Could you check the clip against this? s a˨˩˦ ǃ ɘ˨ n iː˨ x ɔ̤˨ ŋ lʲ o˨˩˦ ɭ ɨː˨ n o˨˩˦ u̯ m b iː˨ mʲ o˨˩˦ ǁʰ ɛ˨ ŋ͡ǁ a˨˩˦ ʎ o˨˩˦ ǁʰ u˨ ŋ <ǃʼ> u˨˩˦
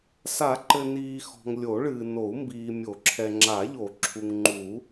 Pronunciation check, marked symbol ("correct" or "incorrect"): incorrect